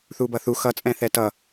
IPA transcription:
θ u b ʌ θ u x ʌ t͡sʼ ɛ̃ θ ɛ t ʌ

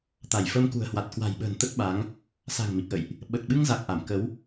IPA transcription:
t̪ a˧˩ j f ə˧ m k ṳ˨˩ ə̯ h w a˨˩ t̚ k w a̤˨˩ j ɓ ə̤ː˨˩ n t̪ ə˦˥ t̚ ɓ a˨˦ ŋ | s a̤˨˩ ŋ m i˨˩ k̚ ʔ ə̰˧˨ j ʔ | ɓ ə˨˩ t̚ ɓ ɨ˧ ŋ z a˨˩ k̚ ʔ a˧˩ m k ə˨˦ w

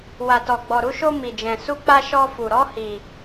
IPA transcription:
w a˧ t ɔ˧ ɡ͡b ɔ˧ ɾ u˦ ʃ o˦ m i˧ d͡ʒ ɛ̃˧ s u˦ k͡p a˦ ʃ ɔ˦ f u˧ ɾ ɔ˦ h i˧

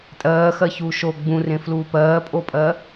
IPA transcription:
tʼ ɜː x ɜ ç uː ʃ o ɡ͡b ũ r ẽ f l uː p ɜː pʼ o pʼ ɜ

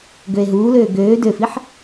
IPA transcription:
ɡ ø e̯ ɦ uː l øː ɡ øː d ø f i ħ

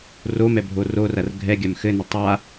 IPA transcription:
r o m ɛ bʱ o r o r ɐ r ɡʱ ɛ ɡʲ a m x ɘ n ɐ tˤ a

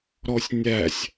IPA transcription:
ɾ ɔ sʲ nʲ æ sʲ

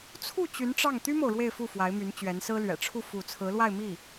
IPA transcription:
t͡sʰ u˥˩ t͡ɕ y˧˥ n ʈ͡ʂ ɑ˥˩ ŋ t̪ y˥ m o˨ ʊ̯ ɻ w e˥˧ ɪ̯ f u˥˩ f w a˧˥ ɪ̯ m y˧˥ n t͡ɕ ɥ ɛ˧˥ n s ɹ̩˥ l ɥ ɛ̰˨˩ ʈ͡ʂʰ u˥˧ f u˥˩ t͡sʰ ɹ̩˧˥ l w a˥˧ ɪ̯ m i˥˩

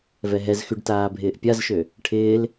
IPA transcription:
v ɛ ɦ ɛ z x y ɖ t aː bʱ ɪː ʔ pʲ a z ʃ ø | ʈʰ ɪː l

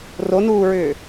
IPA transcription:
r o n uː ɹ ʏː

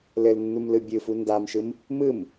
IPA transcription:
l ɘ l nː u m l ɯ bʲ ɯ f u n d a m ʃ ɯ m | m ɯ m

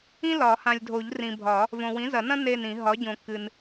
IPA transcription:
ĩ˥ l ɒ˨˩˦ h ã˨ lʲ dʱ o˨˩˦ ʎ r ĩ˨ bʱ ɒ˨˩˦ | v õ˨ w ĩ˩˥ z ɐ˨˩˦ n ɐ̃˥ n e˦˨ n ĩ˨˩˦ ɦ ɒ˩˥ ɟ õ˨˩˦ kː ɨ˨ n

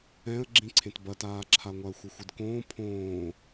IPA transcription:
ɛ̃ ə̯ ɡ͡ǁ ĩ ǀʰ ẽ t b ɐ t aː ǁʰ a ŋʷ a ə̯ xʷ ɐ xʷ ɨ d k õː pʰ õː

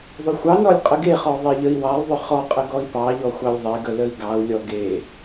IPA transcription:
ðˤ ʏ xʷ ɑ n ɔ lʲ qʼ ə ɡ e χ ɔ ðˤ e ʎ ə i̯ w ɑ lˠ ðˤ ʏ χ ɔ qʼ ə ɡ ɔ i̯ p ɑ ʎ ɔ xʷ ɑ lʲ ðˤ e ɡ ə l ə i̯ ɡ ɑ u̯ lʲ ɔ ɡ e

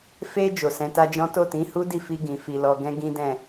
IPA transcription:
f e˧ d͡ʒ o˨ s ɛ̃˨˦ t a˦ d͡ʒ ɔ̃˦ t o˦˨ t ĩ˨˦ h u˦ d i˦˨ f i˧ ɡ ĩ˨ f i˨ l ɔ˨ ɡ ɛ̃˧ ɡ ĩ˦ d ɛ̃˦˨

